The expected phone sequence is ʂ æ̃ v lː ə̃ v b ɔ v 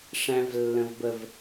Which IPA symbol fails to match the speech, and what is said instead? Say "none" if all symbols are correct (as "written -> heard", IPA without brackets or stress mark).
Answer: ɔ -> ə